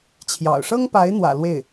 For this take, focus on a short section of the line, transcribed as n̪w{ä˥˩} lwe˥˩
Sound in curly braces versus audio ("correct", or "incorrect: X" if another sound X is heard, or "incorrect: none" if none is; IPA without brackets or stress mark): incorrect: ä̰˨˩